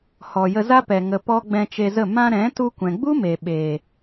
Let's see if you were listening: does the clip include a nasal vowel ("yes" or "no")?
yes